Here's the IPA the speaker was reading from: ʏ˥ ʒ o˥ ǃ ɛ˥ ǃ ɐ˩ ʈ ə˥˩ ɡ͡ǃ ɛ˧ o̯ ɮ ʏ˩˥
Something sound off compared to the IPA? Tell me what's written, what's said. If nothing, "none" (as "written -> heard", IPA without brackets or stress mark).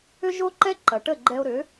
ɮ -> ɾ